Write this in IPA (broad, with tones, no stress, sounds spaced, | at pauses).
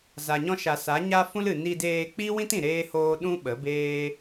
z a˨ ɲ ɔ̃˧ ʃ a˨ s a˨˦ ɲ a˦ f ũ˦ l ɨ˨ n i˧ d eː˧ k͡p i˦ w ĩ˦ t ĩ˨ ɾ eː˦ h oː˦ ɗ ũ˦ ɓ ə˨˦ b eː˦